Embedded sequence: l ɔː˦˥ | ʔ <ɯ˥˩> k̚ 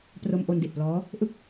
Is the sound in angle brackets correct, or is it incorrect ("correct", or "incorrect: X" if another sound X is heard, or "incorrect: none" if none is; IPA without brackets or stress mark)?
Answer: correct